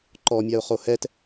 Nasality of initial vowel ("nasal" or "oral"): oral